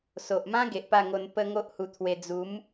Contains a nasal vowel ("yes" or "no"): yes